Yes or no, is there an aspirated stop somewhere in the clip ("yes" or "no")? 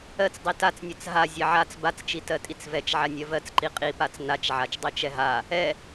no